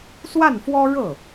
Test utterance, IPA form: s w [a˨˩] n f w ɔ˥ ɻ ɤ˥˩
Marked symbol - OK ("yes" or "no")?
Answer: no